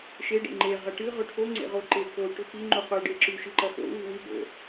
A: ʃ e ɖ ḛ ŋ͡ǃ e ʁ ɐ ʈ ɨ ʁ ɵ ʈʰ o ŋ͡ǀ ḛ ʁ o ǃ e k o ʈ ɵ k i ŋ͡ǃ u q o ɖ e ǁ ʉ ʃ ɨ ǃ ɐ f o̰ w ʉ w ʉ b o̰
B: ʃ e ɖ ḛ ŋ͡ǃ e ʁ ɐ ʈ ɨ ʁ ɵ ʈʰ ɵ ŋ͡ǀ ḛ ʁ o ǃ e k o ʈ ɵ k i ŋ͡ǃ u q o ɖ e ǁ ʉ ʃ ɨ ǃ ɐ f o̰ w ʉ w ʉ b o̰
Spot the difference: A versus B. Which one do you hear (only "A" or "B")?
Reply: A